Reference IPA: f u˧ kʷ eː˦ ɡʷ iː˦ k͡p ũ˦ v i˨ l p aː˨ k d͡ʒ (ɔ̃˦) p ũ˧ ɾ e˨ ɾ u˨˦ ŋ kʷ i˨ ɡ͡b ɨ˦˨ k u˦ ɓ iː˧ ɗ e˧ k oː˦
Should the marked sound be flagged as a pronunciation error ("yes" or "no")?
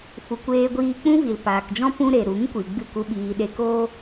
no